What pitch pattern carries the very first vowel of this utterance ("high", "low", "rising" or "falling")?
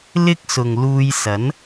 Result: high